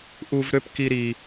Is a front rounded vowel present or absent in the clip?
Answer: present